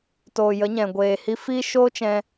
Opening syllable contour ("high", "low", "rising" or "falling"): low